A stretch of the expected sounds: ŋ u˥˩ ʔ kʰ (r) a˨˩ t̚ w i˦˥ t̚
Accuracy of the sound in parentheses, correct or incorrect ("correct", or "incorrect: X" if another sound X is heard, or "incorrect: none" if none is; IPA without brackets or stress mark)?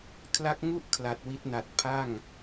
incorrect: l